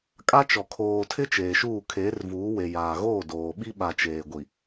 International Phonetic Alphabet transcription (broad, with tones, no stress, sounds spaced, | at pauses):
kʼ a˦ t͡ʃ ɔ˨ kʰ oː˨ tʰ ɪ˦ t͡ʃ eː˨ ʃ uː˦˨ kʰ eː˨˦ r v uː˨˦ w e˨ j aː˨ ɣ oː˦˨ d oː˨ ɓ i˦ ɓ a˨ t͡ʃ eː˨ ɡʷ i˨